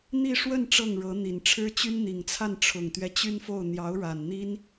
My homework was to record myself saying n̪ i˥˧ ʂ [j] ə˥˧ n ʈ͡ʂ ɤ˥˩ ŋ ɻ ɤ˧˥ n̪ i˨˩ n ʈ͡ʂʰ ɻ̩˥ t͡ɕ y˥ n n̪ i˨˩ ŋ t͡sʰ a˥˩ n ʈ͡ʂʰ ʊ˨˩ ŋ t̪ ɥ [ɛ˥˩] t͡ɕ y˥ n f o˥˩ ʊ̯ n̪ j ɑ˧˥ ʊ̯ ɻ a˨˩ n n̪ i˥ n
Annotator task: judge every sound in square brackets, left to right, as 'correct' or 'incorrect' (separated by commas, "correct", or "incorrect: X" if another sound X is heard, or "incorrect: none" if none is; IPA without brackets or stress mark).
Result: incorrect: w, incorrect: ɛ˦